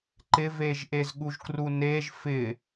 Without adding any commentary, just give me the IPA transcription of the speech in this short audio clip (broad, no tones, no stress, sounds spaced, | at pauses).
ǃ ɪ v e ʒ ʔ e z ɠ u ʒ k r u n e ʒ f ɪ